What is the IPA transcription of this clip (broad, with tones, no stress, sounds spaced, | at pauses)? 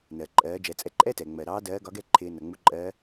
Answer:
n ɜ˩ ǃʼ ɜː˩˧ d͡ʒ ɛ˩˧ t͡sʼ ɛ˧ ǃʼ ɛ˥ t ɛ˩ ŋ͡m ɜ˩ ɾ ɑː˧˥ d ɜː˧˥ ɡ ɒ˧˥ ɡ ɛ˥ ǃʰ ɪː˧ n ʌ˩ ŋ͡m u˧˥ ǃʼ ɜ˧˥